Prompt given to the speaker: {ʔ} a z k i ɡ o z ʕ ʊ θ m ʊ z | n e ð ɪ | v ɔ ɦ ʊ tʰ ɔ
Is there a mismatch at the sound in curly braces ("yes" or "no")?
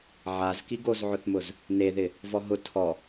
yes